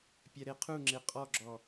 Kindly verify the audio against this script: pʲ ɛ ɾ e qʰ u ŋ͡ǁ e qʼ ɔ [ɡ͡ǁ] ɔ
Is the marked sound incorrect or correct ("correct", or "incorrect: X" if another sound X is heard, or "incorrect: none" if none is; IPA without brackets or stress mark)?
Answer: correct